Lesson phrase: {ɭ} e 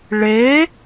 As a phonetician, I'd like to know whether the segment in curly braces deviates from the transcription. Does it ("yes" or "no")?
no